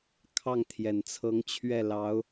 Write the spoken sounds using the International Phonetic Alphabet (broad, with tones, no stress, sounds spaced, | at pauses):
kʰ ɑ˥˩ ŋ t̪ʰ j ɛ˨˩ n t͡sʰ ɤ˧˥ ŋ t͡ɕʰ ɥ ɛ˥˩ l ɑ˧˥ ʊ̯